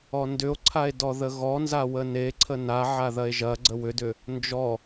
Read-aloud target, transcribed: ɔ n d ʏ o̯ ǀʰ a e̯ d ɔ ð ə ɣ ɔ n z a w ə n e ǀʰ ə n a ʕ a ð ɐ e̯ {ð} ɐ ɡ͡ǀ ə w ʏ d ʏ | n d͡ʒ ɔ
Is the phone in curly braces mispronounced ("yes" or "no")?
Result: yes